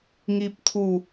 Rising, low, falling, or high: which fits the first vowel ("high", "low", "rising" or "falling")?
high